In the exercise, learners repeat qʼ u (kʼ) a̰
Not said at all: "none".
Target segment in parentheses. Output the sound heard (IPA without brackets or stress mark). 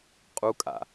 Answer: kʼ